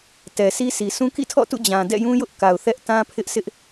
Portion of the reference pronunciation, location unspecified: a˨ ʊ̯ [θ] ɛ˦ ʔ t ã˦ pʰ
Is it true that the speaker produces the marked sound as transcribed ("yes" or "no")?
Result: yes